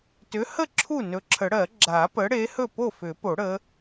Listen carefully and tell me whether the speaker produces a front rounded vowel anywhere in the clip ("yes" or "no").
yes